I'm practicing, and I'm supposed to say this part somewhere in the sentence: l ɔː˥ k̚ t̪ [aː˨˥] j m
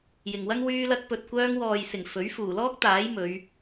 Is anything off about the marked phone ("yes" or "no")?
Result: no